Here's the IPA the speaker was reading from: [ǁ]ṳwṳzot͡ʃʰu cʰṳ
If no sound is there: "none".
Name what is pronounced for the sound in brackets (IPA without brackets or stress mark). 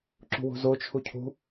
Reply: ǁ